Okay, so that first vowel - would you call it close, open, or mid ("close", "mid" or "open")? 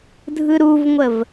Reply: close